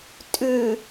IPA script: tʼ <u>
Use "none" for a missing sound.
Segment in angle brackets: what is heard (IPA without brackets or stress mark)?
ʉ